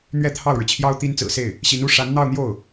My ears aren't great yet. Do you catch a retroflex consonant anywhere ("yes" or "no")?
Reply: yes